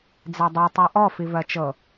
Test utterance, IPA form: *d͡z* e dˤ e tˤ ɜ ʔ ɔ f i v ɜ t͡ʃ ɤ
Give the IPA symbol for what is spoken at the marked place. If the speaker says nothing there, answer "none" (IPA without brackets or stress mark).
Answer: d͡z